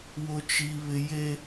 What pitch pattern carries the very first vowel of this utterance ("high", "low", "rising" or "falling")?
high